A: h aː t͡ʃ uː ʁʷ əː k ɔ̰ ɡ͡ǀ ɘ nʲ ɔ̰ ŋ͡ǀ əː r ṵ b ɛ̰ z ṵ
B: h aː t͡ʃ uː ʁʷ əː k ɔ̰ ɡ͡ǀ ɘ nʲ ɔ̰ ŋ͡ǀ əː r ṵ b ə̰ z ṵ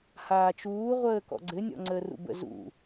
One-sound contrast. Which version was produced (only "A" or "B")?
B